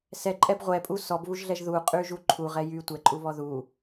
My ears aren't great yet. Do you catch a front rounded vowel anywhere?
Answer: yes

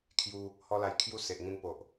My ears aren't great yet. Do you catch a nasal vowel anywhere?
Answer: yes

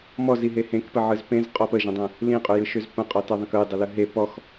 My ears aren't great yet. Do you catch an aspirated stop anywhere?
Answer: no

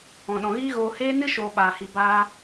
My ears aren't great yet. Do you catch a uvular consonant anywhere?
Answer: no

